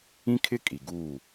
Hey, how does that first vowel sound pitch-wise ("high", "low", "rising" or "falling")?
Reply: high